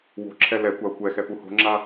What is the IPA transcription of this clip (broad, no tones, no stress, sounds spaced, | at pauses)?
w o̤ ǁʰ ɛ l ɛ kʷ a ʊ̯ kʷ ɛ x ɛ p u h o̤ ŋ͡ǁ a